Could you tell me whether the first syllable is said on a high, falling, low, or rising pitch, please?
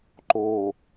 low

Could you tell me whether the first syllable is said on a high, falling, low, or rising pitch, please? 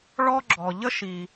high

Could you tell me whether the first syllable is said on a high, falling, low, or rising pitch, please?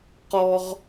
high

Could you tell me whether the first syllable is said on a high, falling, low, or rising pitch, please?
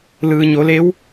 low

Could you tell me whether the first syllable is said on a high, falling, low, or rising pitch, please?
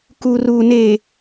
low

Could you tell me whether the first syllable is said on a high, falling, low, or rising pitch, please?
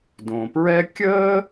low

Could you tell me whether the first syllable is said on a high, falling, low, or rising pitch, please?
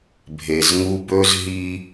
low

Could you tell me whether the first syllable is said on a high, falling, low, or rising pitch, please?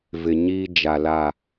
low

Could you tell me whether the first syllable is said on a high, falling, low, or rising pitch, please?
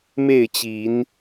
falling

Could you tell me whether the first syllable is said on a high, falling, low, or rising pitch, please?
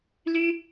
high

